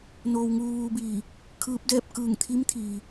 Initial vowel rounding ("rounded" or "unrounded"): rounded